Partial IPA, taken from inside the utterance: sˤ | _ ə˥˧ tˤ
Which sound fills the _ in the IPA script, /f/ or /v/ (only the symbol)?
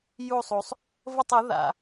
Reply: v